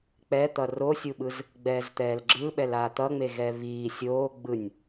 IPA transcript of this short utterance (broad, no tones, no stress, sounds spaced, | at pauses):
k͡p ɛ t̪ ʌ r o sʲ u ɓ ɯ z | ɡ͡b ɛː z t̪ ɛː l ɡ͡ǁ ɯ ɓ ɛ l aː t̪ ʌ ŋ͡m e ɣ ɛ β iː sʲ oː ɡ͡b ɯ nʲ